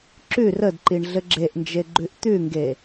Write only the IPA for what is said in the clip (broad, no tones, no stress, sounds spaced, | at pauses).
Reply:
ǁ ʉ r ə d ǃ i ɳ ɮ ɘ ɡ͡ǁ e ʔ n d͡ʒ e ɡ͡ǃ ʉ ʔ t̪ ʉ ŋ ɡ e